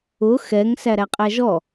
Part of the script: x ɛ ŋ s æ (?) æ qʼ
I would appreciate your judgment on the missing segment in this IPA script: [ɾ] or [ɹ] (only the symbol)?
ɾ